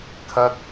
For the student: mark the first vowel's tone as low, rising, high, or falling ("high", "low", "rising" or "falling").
high